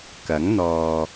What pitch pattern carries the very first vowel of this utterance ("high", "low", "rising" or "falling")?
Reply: rising